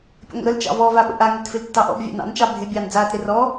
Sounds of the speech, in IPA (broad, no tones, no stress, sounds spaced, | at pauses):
pʲ ə̰ ŋʷ ə̰ ɾ ə l t͡ʃ ɑ̰ v ɔ v a ɓ ə̰ ʔ a ŋ ɪ t f ɪ l tː ɑ ʔ ɔ̰ b vʲ ɑ̰ n ɑ̰ n t͡ʃ ɑ bʱ ɪ bʲ ɑː n d͡z aː t ɾ ɪ r ɔ